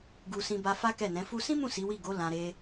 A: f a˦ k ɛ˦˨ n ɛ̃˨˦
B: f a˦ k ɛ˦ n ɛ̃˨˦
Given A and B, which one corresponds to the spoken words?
A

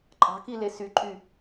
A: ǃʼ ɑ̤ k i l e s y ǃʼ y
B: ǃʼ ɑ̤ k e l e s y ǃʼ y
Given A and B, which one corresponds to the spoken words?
A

